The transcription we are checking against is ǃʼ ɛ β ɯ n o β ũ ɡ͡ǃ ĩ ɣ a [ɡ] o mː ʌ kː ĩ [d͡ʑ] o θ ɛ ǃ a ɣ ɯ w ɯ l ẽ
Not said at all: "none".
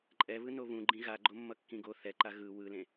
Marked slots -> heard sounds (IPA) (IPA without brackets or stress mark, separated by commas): ɡ͡ǃ, ɡ